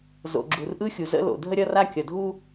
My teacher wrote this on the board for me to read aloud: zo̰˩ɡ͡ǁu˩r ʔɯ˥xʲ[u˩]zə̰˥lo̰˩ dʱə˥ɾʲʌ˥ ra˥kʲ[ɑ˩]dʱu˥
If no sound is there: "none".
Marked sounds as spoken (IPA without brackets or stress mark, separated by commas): u˩, ʌ˩